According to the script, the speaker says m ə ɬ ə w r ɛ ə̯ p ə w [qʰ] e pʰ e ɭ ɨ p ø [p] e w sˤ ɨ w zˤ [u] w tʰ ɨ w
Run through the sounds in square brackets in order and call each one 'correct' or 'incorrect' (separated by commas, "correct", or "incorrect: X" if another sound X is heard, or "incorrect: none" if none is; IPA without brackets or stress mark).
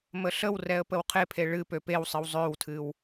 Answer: correct, correct, incorrect: ø